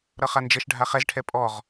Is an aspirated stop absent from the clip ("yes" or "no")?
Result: no